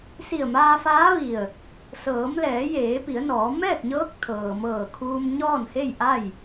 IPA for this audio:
s i˧˩ ə̯ m aː˧ f aː˧˥ ʋ i˧˩ ə̯ | s ɤː˩˧ m l ɛː˩˧ j eː˩˧ p i˩˧ ə̯ n ɔː˩˧ m ɛː˥˨ k̚ ɲ ɤː˧˥ k̚ t̪ʰ ɤː˩ m ɤː˧˩ kʰ uː˧ m ɲ ɔː˥˨ n h e˥˨ j ʔ a˥˨ j

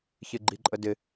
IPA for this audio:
ç ɪ ɡ͡ǃ i ǃʼ ə d ɪ

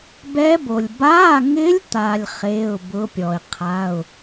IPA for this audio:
b ɛ˦˥ b o˨ lʲ b a˧˥˧ ŋ ɪ˦˥ lʲ t̪ a˨ lʲ χ e˧˥˧ ʊ̯ b ʊ˦˥ pʲ ɔ˨ ɪ̯ qʰ a˧˥˧ ʊ̯

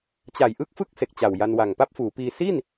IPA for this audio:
t͡ɕ a˨˩ j ʔ ɯ˥˩ k̚ f ɯ˥˩ k̚ s e˨˩ k̚ t͡ɕ a˨˩ w j a˧ n w a˨˩ ŋ p a˥˩ p̚ f uː˩˦ p iː˧ s i˥˩ n

